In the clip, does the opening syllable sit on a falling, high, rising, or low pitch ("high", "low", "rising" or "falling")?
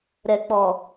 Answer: low